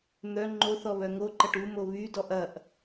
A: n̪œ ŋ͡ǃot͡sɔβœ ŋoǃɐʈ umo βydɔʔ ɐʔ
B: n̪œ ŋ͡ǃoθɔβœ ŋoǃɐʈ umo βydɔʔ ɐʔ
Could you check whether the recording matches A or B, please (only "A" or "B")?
B